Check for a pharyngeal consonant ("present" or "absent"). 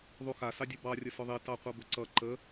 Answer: absent